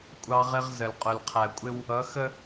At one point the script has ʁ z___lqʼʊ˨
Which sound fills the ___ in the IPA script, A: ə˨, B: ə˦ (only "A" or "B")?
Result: A